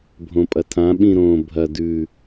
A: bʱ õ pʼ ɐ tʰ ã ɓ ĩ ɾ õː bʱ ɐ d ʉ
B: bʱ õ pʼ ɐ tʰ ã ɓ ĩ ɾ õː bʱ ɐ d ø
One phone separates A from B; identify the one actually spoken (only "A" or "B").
A